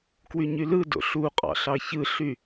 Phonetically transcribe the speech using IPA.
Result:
k w y ɲ y l ɯ d o̰ ɬ u qʼ ɑ̰ ɬ ɑ ç ɯ ɬ y

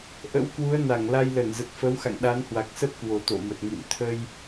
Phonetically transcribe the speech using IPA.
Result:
ʔ ə̰˧˥ w k w u˨˦ ə̯ n a˧˩ ŋ l a˧ j l ə˧˩ n z ə˨˩ t̚ f ə˨˦ w x a̰˧˨ ŋ ɗ a˨˦ n h w a˨˩ k̚ s ə˦˥ p̚ k w o˨˩ t̪ o̰˧˨ m ə˨˩ t̚ ŋ ḭ˧˨ m t̪ʰ ə˧ j

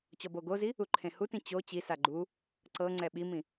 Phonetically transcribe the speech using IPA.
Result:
t͡ɕ ɔ b o ɡ o z i | u ǃʰ ẽ h u t ĩ t͡ɕ o t͡ɕ i s a ɡ͡ǃ u | ǀ ɤ ŋ͡ǀ ɛ ɓ i m ĩ

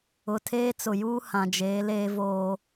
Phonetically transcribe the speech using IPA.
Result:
ʊ˨ tʰ eː˦ t͡s ʊ˨ j uː˦ h ã˨ d͡ʒ eː˨˦ l eː˦ v oː˦

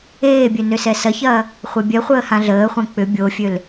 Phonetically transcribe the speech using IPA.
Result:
eː bʲ ø n ø s ɛ s ɐ ç ɐː | χʷ e bʲ ɛ χʷ əː h ã ɮ əː χʷ ɛ̃ k͡p ʏ bʲ o fʲ ø l

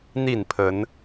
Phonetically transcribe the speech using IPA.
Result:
n̪ i˥˨ n pʰ ə˨˦ n

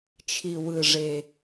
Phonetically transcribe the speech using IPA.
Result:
t͡ʃʰ i˨˩ w ɯ˨˩ ʐ e˨˩

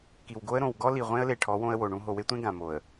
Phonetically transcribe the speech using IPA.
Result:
k i˨ w ɡ o˦ ə̯ ɾ õ˨ w ɡ ɔ˦ l i˨ ʁʷ ẽ˦ ə̯ l e˨ ʈʰ ɔ˨˦ w õ˦ ə̯ w o˨ ɳ ũ˦ ɦ o˨ w e˦ tʷ ẽ˦ ɡ ã˨ m o˨ ə̯

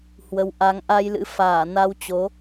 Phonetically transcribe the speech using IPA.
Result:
h w ə˨˦ w ʔ a˨˦ ŋ ʔ a˧ j l ɨ̰˧˥ f aː˧˩ n a˧ w t͡ɕ o˨˦

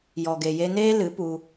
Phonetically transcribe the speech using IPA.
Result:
j ɔ˨ ɡ e˨ j e˧ n eː˦ l ɨ˨˦ p u˧

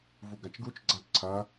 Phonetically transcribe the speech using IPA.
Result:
v u ɡ a t͡ʃ ɡ u t͡ʃ ɡ͡ǀ a ǀʰ ɐ

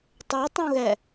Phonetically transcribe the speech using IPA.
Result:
tˤ ø tˤ ũ ɣ ɛ

